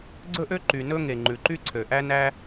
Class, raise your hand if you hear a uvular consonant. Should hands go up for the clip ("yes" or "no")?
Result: no